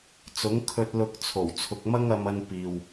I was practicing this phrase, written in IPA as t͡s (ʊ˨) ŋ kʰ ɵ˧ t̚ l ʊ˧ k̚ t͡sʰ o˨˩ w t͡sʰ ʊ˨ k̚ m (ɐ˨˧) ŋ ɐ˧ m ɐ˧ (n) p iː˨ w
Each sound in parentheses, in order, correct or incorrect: incorrect: ʊ˨˥, incorrect: ɐ˥, correct

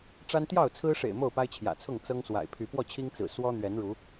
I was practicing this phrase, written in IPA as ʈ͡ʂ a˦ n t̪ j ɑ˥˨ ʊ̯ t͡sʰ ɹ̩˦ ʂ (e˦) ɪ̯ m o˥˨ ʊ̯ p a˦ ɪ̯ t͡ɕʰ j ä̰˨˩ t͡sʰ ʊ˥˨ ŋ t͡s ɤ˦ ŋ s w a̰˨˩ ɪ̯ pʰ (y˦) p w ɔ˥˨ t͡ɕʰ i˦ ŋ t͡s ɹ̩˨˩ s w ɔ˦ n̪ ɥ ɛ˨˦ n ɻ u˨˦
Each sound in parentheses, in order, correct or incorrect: incorrect: ḛ˨˩, incorrect: y˨˦

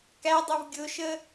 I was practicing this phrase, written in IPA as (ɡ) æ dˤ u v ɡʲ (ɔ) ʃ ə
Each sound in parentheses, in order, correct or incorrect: incorrect: k, incorrect: ʊ

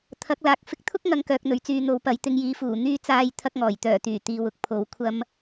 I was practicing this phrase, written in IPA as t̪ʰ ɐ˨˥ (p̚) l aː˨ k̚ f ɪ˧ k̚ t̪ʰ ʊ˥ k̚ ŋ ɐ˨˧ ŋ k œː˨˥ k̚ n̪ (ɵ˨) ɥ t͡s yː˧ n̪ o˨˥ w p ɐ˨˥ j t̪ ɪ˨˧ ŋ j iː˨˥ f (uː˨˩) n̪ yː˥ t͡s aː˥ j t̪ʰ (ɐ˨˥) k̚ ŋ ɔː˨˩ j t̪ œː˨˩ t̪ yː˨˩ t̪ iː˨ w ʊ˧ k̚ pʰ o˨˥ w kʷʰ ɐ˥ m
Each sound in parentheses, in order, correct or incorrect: incorrect: k̚, correct, correct, incorrect: ɐ˥

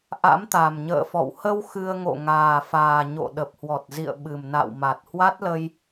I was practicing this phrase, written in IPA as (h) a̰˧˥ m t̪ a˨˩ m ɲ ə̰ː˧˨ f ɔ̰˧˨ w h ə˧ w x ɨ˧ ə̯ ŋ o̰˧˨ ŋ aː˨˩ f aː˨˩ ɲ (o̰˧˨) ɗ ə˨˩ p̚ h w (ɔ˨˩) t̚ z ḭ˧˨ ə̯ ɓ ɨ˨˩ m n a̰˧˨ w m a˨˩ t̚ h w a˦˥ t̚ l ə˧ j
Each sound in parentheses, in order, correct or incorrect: incorrect: ʔ, correct, correct

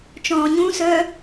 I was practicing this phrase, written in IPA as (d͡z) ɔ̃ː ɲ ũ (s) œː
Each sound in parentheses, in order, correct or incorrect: incorrect: t͡ʃ, correct

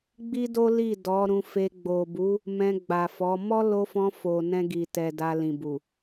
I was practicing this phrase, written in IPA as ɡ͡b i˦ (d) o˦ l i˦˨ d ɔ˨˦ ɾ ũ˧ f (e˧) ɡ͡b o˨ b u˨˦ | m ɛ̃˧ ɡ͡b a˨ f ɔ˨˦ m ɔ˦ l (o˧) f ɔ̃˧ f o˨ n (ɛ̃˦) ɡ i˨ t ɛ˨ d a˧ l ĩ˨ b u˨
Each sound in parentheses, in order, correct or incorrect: correct, correct, correct, incorrect: ɛ̃˧

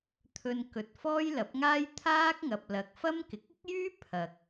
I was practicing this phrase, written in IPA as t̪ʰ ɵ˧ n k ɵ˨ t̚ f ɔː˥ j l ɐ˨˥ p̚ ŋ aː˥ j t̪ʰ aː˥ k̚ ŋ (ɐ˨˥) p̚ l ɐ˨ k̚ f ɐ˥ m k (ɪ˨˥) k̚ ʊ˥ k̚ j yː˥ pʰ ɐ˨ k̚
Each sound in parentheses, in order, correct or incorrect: incorrect: ɐ˨, incorrect: ɪ˨

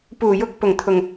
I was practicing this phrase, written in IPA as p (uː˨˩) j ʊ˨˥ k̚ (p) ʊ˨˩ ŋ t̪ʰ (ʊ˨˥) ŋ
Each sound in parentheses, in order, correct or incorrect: correct, correct, incorrect: ʊ˨˩

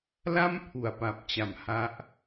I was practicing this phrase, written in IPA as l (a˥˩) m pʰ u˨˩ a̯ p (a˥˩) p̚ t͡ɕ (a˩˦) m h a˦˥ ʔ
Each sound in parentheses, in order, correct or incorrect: correct, incorrect: a˨˩, correct

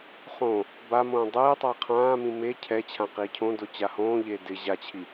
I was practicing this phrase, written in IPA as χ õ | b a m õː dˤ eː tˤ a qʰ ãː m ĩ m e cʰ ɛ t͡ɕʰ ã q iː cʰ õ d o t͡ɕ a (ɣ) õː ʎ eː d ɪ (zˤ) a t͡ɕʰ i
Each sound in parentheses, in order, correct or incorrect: incorrect: h, incorrect: ʑ

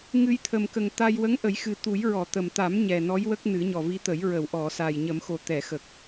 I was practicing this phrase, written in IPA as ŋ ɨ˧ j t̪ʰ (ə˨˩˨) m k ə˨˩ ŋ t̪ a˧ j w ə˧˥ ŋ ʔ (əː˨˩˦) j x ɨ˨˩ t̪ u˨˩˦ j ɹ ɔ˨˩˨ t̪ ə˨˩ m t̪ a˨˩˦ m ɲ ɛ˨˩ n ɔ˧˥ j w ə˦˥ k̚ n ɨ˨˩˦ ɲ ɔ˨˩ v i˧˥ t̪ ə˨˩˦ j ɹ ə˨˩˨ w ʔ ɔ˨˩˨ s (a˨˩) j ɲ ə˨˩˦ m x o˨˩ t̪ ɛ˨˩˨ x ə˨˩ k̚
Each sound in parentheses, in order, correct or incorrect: incorrect: ə˨˩, incorrect: ə˨˩˦, correct

